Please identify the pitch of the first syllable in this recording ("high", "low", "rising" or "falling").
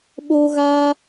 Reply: high